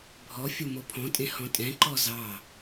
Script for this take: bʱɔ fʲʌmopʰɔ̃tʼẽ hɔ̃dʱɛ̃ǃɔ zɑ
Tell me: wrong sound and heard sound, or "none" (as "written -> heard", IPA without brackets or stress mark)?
dʱ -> tʼ